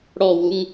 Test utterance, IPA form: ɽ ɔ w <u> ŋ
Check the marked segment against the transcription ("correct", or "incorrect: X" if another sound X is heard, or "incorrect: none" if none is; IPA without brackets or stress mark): correct